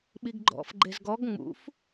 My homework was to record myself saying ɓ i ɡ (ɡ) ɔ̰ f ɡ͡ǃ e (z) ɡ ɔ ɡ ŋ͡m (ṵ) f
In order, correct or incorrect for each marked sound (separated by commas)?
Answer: incorrect, correct, correct